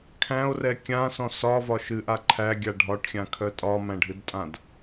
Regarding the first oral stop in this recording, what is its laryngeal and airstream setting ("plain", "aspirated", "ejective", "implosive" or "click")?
aspirated